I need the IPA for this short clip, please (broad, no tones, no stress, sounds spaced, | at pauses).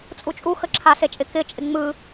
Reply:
t͡sʼ u t͡ʃʼ u x ə ǁʰ a s e t͡ʃʼ ɪ k ɪ t͡ʃʼ ɪ ŋ͡m ɯ